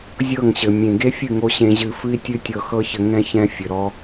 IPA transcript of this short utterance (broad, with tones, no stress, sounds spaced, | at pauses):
zʲ ɤ˦˨ ŋ ɕ ɘ˨ mʲ ẽ˨ ɡ e˦ fʲ ɨ˦˨ ŋ o˧ ɕ ẽ˧ ʑ ɨ˧ f ɨ˦ i̯ tʲ ɨ˦ tʲ ɤ˧ x ɤ˦ ç ɘ˧ ŋ ɛ̃˧ ç ɛ̃˦ fʲ ɘ˨ ɾ ɔ˦